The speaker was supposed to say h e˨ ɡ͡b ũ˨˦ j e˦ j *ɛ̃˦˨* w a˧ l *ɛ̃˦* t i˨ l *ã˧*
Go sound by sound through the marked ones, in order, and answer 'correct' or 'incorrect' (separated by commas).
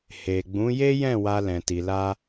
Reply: correct, incorrect, incorrect